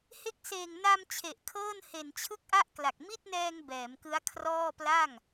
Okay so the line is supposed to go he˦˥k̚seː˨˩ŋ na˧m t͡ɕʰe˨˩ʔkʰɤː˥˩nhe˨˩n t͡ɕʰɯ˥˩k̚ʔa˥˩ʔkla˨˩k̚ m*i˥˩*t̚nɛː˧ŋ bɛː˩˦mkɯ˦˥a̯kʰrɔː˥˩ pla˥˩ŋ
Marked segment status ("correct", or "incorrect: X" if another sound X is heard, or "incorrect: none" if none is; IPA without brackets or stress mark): correct